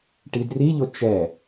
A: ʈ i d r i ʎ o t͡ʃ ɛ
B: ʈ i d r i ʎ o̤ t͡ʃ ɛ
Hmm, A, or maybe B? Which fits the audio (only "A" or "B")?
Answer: A